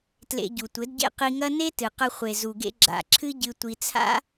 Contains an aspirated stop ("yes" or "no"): yes